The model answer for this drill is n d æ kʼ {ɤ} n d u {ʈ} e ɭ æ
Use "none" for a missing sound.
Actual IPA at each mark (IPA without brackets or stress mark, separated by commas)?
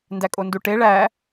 o, ʈ